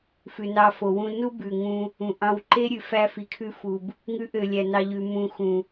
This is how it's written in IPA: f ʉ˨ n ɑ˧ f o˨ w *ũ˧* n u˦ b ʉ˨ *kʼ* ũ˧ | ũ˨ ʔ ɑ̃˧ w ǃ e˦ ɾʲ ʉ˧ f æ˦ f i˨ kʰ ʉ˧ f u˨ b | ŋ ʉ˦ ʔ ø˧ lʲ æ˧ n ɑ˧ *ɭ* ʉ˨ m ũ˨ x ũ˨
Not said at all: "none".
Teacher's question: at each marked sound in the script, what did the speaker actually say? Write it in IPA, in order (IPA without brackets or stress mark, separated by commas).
ũ˧, ŋ, ʎ